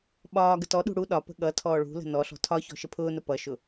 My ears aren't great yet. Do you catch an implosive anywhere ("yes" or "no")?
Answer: yes